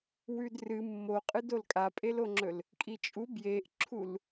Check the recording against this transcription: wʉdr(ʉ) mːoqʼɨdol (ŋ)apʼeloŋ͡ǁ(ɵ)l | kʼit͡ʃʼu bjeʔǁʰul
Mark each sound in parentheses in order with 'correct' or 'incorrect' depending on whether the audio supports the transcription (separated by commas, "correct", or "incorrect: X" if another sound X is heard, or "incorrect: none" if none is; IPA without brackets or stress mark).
incorrect: ɨ, incorrect: kʼ, correct